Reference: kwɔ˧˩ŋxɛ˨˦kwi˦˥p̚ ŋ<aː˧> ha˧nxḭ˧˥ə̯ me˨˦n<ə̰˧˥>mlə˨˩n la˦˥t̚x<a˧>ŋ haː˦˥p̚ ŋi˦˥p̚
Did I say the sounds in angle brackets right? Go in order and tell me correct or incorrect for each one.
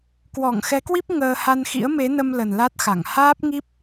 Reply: incorrect: əː˧, incorrect: ə˧, incorrect: a˧˩

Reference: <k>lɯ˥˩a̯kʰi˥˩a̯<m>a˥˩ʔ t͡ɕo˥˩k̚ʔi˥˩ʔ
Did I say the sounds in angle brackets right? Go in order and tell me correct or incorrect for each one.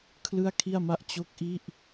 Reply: incorrect: kʰ, correct

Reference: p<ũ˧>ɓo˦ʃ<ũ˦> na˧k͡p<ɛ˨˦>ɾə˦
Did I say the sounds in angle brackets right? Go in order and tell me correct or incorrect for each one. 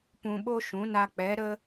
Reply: correct, incorrect: ũ˨˦, correct

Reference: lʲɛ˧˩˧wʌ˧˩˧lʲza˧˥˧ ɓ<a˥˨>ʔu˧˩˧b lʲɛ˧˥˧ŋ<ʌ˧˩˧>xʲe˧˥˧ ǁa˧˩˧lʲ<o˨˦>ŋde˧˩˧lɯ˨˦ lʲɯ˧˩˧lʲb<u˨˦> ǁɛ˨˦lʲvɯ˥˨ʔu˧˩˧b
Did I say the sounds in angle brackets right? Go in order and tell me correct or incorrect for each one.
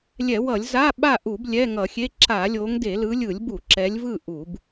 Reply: correct, correct, correct, incorrect: u˧˩˧

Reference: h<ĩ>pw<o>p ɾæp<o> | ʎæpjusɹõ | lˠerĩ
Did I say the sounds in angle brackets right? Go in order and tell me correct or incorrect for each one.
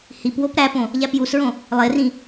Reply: incorrect: i, correct, incorrect: õ

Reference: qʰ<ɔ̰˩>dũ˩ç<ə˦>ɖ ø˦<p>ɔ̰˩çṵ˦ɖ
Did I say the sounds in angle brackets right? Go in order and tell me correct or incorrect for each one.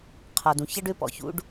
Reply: incorrect: ɔ˩, incorrect: ɐ˦, correct

